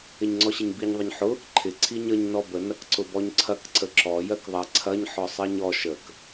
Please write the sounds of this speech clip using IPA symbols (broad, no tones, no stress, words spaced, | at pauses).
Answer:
ɪɲŋ͡ǀɔɕɪɲbiɲ ðˤɪɲħʊ | ǃʰɪ ǀʰiɲəɲ nɔbə nɐkǀʊbɔɲǀʰɐk ǀəǁɔ jɜkðˤɐ ǀʰɐɲ ħɔsˤɜɲɔ ʃək